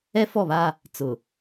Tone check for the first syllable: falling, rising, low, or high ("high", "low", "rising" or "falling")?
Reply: high